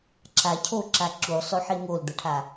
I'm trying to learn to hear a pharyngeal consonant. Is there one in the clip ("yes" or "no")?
yes